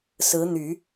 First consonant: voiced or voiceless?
voiceless